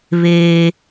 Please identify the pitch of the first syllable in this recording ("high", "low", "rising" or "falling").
high